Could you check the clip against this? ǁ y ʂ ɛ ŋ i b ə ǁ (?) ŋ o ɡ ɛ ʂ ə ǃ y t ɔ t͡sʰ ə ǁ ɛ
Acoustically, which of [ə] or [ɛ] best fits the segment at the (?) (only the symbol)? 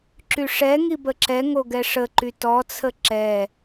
ɛ